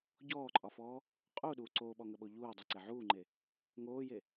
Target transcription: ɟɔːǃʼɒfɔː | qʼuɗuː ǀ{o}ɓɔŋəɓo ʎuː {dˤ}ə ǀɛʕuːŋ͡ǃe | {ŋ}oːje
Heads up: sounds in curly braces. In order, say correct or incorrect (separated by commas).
incorrect, correct, correct